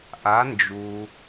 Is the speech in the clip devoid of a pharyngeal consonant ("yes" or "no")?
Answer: yes